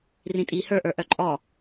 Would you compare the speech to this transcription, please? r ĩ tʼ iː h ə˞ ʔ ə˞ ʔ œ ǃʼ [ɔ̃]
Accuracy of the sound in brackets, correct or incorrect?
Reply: incorrect